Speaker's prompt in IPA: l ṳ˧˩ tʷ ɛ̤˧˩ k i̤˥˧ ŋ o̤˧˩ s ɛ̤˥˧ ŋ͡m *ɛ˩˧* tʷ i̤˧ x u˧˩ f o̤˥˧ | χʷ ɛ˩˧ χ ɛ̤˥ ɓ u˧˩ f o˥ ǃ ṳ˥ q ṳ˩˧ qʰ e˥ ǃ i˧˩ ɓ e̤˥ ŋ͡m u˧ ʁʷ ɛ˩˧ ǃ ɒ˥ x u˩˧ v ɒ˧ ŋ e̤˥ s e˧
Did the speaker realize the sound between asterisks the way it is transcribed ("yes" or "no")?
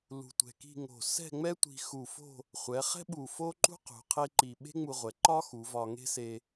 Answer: no